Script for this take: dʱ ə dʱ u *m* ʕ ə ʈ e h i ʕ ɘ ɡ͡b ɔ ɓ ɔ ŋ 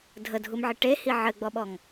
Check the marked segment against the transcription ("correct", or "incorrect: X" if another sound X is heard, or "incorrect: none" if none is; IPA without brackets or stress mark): correct